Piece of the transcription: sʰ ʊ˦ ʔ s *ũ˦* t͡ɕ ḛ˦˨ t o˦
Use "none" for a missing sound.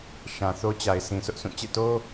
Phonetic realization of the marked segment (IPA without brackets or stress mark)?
ũ˦˨